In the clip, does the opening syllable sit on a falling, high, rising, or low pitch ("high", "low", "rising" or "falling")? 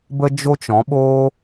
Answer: high